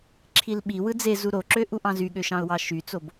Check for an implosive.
present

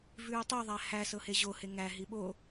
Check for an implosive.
present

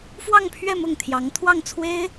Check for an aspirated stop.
present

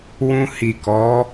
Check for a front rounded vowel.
absent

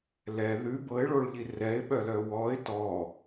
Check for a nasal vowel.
absent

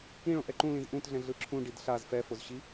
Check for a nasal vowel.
present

